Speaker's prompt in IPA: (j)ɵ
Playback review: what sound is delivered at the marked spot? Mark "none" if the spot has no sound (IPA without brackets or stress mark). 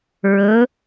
ɹ